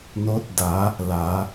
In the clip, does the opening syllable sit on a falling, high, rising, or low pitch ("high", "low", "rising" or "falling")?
rising